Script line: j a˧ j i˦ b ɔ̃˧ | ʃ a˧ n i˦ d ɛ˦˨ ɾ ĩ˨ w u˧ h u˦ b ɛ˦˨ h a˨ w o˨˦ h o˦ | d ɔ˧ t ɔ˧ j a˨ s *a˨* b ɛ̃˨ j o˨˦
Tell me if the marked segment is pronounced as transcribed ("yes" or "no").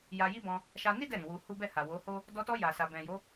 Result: yes